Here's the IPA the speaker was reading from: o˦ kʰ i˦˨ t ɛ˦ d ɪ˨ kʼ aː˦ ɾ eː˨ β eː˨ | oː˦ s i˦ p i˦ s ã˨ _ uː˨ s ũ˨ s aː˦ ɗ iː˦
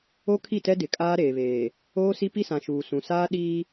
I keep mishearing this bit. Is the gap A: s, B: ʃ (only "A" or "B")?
B